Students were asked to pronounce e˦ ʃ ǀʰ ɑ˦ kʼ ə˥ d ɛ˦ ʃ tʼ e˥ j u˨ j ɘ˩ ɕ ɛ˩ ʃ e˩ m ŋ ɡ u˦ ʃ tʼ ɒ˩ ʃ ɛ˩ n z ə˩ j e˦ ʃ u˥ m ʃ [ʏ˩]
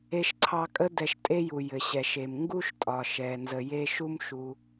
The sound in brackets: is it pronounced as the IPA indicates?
no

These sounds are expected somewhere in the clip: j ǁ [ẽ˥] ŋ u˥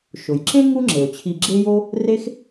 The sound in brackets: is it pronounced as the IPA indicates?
yes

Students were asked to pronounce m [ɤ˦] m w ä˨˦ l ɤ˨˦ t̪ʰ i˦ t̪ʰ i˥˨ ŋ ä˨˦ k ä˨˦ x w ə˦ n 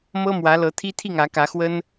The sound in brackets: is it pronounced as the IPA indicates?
yes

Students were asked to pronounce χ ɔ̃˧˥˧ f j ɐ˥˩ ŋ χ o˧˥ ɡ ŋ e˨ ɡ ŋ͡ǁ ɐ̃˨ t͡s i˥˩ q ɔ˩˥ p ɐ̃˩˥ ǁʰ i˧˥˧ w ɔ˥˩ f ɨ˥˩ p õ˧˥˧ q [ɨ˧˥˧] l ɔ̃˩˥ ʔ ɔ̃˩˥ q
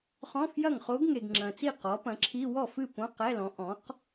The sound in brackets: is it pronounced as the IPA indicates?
no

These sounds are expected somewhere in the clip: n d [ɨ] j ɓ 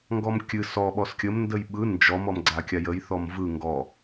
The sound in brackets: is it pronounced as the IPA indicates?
no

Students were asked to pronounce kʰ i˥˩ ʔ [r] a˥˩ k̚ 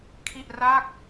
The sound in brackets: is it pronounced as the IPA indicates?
yes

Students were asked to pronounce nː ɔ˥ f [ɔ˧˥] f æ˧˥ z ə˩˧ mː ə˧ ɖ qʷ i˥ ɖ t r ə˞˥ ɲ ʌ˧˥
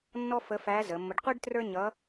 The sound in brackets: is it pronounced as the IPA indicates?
no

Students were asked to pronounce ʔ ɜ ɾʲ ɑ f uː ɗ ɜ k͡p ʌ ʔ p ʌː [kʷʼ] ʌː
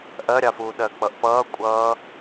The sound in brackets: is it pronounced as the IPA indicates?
yes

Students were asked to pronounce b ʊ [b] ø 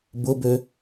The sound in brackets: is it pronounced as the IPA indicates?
yes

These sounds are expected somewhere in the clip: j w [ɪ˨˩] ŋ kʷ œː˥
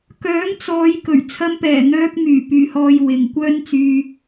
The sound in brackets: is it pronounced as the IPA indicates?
no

